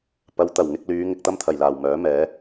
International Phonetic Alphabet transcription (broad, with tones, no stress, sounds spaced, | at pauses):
p ɐ˨˧ w t̪ ɐ˨˩ w ŋ ɪ˧ k̚ l yː˨˧ ŋ ɪ˧ k̚ t̪ ɐ˥ m t̪ʰ ɐ˨˩ j l aː˨˩ w m œː˨˥ m ɛː˨˥